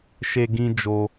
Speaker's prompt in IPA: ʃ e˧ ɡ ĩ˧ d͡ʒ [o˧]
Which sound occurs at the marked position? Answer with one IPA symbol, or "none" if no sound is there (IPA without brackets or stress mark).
o˧